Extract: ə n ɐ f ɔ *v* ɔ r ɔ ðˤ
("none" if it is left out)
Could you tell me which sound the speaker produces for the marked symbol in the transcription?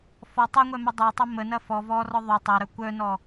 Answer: v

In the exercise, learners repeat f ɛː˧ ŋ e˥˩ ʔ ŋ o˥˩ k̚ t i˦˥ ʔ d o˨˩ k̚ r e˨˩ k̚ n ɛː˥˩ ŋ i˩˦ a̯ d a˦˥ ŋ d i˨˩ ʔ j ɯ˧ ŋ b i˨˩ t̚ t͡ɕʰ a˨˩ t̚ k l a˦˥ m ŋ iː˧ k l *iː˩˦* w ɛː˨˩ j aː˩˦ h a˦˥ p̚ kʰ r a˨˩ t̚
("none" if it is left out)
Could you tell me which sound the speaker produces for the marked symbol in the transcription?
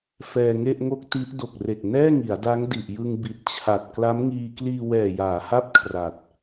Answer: iː˧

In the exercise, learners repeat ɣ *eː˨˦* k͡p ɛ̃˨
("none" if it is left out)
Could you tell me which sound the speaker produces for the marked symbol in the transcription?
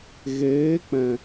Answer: eː˨˦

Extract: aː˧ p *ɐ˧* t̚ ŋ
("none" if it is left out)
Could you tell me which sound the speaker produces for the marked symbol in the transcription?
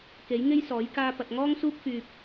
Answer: ɐ˨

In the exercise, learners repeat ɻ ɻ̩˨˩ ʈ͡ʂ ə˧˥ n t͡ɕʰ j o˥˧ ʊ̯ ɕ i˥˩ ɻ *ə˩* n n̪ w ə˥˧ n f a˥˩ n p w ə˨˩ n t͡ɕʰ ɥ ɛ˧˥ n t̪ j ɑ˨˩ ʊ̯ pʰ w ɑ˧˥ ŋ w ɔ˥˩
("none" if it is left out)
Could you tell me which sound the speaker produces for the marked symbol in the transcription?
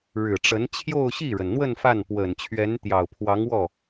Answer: ə˩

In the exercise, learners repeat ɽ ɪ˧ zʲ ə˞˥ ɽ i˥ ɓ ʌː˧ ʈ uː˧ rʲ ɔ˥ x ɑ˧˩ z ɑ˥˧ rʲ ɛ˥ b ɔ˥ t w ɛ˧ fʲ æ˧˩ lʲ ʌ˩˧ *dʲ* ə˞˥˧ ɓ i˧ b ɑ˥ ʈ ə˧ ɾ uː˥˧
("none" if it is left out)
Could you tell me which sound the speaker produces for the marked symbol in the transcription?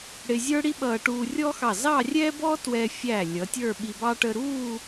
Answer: tʲ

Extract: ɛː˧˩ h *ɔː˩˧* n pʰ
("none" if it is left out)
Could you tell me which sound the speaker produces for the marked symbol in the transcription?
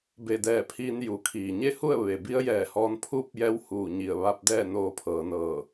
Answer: ɔː˧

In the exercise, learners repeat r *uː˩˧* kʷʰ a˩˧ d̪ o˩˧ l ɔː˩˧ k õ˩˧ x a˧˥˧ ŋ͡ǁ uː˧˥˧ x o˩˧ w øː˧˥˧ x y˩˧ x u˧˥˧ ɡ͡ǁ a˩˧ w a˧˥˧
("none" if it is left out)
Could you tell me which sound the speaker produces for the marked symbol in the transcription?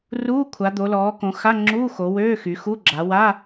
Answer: uː˧˥˧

